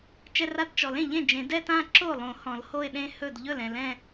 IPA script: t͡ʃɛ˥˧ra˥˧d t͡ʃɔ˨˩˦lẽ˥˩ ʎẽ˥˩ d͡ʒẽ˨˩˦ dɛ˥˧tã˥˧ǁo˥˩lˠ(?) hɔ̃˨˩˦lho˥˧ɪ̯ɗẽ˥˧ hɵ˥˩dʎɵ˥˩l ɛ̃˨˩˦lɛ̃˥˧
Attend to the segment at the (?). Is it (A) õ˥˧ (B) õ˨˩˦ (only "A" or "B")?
B